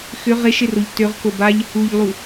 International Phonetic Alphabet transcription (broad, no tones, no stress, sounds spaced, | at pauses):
x ʏ ʁ e ʃ ɪ r o ʎ t ø ʁ k o b a ʎ | u ʎ lˠ u